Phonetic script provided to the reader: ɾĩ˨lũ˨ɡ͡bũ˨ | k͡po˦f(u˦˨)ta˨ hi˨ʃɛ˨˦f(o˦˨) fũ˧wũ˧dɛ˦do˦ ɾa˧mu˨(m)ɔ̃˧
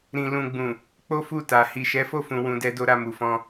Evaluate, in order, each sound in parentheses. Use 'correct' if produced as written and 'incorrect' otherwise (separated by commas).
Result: correct, correct, incorrect